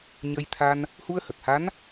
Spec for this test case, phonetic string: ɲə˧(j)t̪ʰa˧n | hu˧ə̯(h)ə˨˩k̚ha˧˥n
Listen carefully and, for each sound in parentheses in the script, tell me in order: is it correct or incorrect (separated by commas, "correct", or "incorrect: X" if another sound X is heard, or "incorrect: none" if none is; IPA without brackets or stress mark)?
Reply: correct, correct